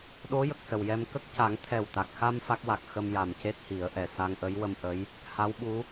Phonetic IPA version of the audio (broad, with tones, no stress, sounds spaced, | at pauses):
ɗ o˧˥ j ə˨˩ k̚ s ə˨˩ w j ɛ˧ m k ə˦˥ k̚ c a˨˩˦ ŋ t̪ʰ ɛ˨˩ w t̪ a˨˩ k̚ x a˧ m f a˦˥ k̚ w a˨˩ k̚ x ə˧ m j a˨˩ m c e˦˥ t̚ h i˨˩˦ ə̯ ʔ ɛ˨˩ s a˧ ŋ ʔ ə˧˥ j w ə˧ m ʔ ə˧˥ j | h a˧˥ w ɓ u˧˥